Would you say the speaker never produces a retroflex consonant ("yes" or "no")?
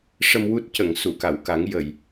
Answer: no